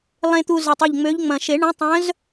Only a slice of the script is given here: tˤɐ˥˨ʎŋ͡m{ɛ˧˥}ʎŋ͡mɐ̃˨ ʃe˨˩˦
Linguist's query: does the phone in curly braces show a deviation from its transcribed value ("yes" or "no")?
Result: yes